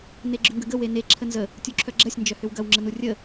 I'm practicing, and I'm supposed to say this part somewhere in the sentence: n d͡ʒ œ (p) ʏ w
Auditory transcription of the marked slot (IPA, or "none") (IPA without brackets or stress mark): h